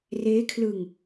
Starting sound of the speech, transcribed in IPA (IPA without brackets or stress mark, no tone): r